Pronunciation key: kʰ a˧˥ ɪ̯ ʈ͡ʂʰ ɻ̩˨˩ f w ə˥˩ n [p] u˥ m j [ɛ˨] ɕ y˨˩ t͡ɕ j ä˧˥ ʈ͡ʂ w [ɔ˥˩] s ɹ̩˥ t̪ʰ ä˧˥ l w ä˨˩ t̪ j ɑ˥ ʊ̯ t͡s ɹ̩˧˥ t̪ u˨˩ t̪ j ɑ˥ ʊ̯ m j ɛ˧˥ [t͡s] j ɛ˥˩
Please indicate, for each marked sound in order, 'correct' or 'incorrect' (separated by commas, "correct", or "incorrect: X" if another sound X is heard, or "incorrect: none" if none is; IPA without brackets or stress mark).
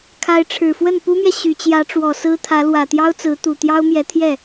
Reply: correct, correct, incorrect: ɔ˨˩, incorrect: t̪ʰ